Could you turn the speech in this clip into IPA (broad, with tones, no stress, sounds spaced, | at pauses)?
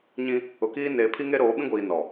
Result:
ɲ ĩ˦ | ʊ˨ k iː˦ n eː˨ pʰ i˦ ŋ e˦ ɾ oː˨˦ ɓ ĩ˦ ɡʷ iː˨ n ɔ˨